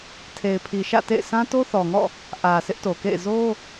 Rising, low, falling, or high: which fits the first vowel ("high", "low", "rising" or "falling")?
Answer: low